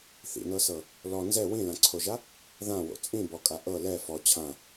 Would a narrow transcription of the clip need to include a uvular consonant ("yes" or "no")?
no